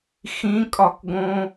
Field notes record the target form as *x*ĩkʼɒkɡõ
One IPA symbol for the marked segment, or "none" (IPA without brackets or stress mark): x